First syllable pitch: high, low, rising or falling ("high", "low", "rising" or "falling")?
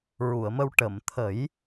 low